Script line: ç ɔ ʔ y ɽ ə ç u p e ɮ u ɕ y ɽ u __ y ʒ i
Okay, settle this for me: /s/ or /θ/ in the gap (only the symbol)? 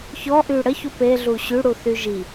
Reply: θ